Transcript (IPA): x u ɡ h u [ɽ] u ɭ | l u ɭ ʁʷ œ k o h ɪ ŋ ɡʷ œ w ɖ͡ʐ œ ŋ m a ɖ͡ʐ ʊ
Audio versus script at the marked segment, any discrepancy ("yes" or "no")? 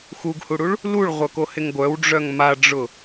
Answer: no